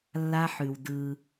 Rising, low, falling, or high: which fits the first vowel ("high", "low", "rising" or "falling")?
high